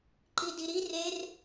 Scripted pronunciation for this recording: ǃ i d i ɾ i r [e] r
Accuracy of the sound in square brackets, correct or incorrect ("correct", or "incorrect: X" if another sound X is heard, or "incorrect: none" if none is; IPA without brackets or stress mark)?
correct